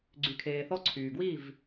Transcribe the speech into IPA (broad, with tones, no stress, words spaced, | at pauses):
ɡ͡ǀy˨kʰeː˨θɔ˧ ǀʰyː˨ɡwi˦˨v